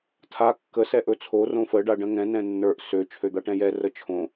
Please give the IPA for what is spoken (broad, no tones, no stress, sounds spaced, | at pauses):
tʰ a kː ə s ɛ ʔ ɵ t͡sʰ o r õ f ə ɖ a ɖ ə̃ ŋ ɛ̃ n ɛ̃ nː ə˞ ʔ s ø t͡ʃʰ ø d̪ a ʈ ɛ̃ j ɛ r ə t͡ʃʰ õ